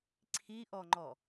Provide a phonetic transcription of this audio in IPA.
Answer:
ǀʰ i ʔ ɔ ŋ͡ǃ ɔ

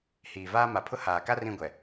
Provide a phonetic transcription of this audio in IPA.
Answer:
h iː˨ v aː˦ m a˨ pʰ ʊ˦ h aː˨ k a˦ r ĩ˦˨ ɡʷ ɛ˨

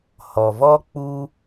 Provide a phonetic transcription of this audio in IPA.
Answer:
h ɔ˨ v ɔ˦ k͡p u˦

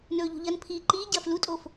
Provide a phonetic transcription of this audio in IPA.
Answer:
n ɵː ʎ ṳ ʎ ɐ n pʰ iː ǃ iː ɟ ɐː f l u tʼ o f

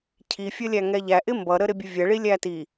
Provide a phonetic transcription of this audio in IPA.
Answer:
cʰ i fʲ ə lʲ æ ŋ ɛ ʎ æ ʔ ɪ m b ʌ ɾ ə ɾ ɪ bʲ u vʲ ɛ ɭ i lʲ æ t i

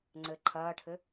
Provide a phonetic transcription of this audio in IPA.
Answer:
ŋ͡ǀ ɘ ǃʰ ɐː ʈʰ ɘ

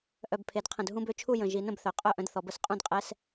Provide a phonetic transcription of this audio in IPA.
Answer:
ʔ œ˨˩ b pʰ e˩˧ d qʰ ə̃˨˩ d ɦ ũ˧˥˧ b ø˧˥ t͡ʃʰ u˥˨ j ə̃˨˩ ʒ i˩˧ n ə̃˥˨ b θ œ˩˧ qʼ œ˥˨ ʔ ə̃˧˥ d θ ɔ˩˧ b ə˧˥ s qʼ ũ˥˨ d qʼ ɛ˧˥˧ s

